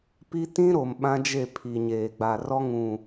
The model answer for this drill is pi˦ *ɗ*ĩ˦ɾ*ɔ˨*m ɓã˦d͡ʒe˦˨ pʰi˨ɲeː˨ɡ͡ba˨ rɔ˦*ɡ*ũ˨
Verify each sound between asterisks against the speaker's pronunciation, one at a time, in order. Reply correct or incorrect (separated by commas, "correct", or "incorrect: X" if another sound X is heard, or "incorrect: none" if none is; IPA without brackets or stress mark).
incorrect: t, incorrect: o˨, incorrect: ŋ